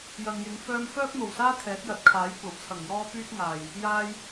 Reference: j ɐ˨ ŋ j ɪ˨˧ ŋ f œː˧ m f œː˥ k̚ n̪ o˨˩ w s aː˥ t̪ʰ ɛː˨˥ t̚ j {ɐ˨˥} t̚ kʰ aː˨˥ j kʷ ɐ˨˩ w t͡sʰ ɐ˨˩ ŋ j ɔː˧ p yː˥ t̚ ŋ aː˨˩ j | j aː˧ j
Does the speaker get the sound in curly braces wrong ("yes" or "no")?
no